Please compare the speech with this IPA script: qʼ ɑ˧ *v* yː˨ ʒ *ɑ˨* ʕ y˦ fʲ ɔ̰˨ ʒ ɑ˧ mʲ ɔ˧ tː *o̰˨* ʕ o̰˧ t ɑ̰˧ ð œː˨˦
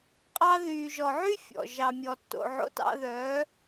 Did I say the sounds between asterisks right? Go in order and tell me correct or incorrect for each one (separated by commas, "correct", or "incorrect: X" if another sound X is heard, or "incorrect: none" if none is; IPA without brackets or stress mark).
incorrect: ð, incorrect: ɔ˨, incorrect: o̰˧